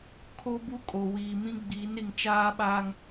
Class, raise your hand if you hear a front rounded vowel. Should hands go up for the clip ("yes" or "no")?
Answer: no